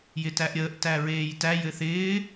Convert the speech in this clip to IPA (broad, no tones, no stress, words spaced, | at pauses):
jɪtæʔɾʲəːʔ tæɹeːjtæ jɘθɪː